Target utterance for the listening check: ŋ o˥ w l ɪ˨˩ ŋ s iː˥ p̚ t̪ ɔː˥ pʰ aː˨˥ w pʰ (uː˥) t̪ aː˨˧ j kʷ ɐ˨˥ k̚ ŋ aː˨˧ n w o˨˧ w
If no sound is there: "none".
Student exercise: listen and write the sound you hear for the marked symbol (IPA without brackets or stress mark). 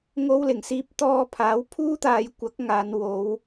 uː˥